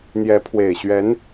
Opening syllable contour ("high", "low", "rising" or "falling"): rising